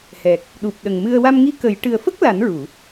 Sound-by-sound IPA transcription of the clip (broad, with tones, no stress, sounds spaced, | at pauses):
h ɛ˨˩ k̚ | ɗ u˨˩ p̚ ɗ ə˨˩ ŋ m ɨ˧ ə̯ w a˧ m ŋ i˧˥ k ə˨˩˦ j ʈ ɨ˨˩ ə̯ f ə˦˥ k̚ l a˨˩˦ n ɹ u˨˩˨